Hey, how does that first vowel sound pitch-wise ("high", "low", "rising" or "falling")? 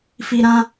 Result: high